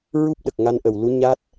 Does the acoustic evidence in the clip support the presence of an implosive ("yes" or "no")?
yes